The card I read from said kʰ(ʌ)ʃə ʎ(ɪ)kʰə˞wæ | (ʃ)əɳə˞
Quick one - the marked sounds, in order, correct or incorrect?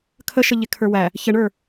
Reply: incorrect: ə, correct, incorrect: ç

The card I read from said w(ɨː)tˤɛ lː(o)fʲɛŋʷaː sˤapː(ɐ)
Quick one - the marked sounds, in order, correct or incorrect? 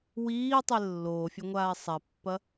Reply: incorrect: iː, incorrect: oː, correct

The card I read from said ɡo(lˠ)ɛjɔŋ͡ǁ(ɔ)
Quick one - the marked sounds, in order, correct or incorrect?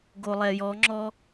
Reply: correct, correct

